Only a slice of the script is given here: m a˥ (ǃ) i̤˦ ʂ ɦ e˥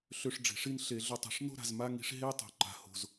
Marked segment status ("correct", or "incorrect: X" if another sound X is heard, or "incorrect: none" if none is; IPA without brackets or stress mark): incorrect: ŋ